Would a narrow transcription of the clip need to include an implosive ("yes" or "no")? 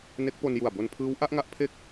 no